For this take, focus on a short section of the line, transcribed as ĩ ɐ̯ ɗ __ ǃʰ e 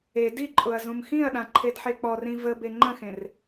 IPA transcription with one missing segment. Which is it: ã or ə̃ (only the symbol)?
ã